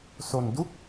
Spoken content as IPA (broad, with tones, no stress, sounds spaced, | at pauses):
s o˧ n d u˥˩ k̚